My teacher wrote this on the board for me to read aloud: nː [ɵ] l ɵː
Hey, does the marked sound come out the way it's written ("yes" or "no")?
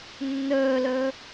no